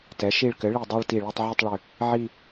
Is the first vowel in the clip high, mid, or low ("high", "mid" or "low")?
mid